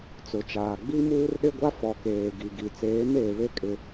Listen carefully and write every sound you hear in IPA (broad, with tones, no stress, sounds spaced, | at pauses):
t͡s ʊ˨ t͡ʃ aː˨ ɡ͡b i˦ m uː˦ r ɗ ɪ˦ ɡʷ a˦ f ɔ˨ k eː˨ ɡ i˨ ɡ i˨ t͡s eː˨˦ m eː˨ β e˦ kʼ ɪ˦